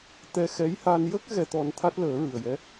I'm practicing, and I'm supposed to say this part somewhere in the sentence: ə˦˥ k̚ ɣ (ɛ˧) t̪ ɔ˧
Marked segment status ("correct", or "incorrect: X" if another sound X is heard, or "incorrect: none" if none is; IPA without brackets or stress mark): correct